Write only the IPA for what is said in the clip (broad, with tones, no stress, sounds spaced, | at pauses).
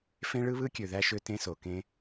f ẽ˦ ɭ ɯ˦ β ɯ˦ kʲ ø˨ ð æ˦ ʃ ø˦ t ẽ˦ s o˨ k ẽ˧